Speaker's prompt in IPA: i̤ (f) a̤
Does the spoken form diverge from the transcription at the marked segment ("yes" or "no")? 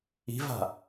yes